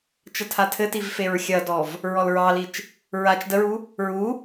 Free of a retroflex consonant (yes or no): yes